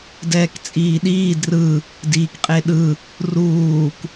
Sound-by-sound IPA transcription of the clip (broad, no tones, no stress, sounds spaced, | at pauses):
d ɛː k t͡sʼ iː ɗ iː d r ɯ | d iː k qʼ e ɗ ɯ | r uː k